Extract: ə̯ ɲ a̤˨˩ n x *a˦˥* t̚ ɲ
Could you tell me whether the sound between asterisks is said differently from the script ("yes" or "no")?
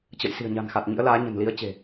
yes